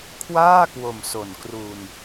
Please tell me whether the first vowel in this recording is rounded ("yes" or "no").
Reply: no